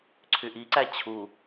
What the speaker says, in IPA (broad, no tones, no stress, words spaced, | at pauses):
ǀʰyʔiǀæ t͡ɕʰu